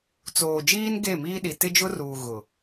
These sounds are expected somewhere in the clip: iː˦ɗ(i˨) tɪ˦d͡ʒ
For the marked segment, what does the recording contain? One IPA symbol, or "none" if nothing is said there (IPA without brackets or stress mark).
i˨